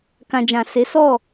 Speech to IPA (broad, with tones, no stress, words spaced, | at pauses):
kã˨d͡ʒã˨ se˨˦ sɔ˦˨